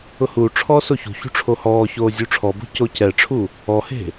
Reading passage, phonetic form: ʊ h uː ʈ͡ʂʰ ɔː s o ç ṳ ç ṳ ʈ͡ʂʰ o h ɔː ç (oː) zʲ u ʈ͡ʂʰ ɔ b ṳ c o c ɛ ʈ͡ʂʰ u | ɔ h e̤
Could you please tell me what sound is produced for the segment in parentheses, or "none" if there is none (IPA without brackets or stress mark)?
oː